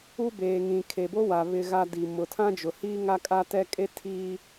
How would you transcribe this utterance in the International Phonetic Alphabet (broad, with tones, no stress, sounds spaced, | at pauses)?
u˦ b eː˨ ŋ ĩ˨ kʰ e˨ b o˦ w a˨ β ɪ˨ ɣ a˨ d i˨ m ʊ˨ tʰ ã˦ d͡ʒ ʊ˨ h iː˦ ŋ a˦ kʼ a˦ t ɛ˦ kʼ e˦ tʰ iː˦